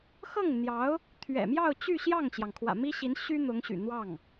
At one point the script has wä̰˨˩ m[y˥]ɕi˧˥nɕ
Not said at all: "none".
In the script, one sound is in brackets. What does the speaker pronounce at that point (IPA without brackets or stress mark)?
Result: i˥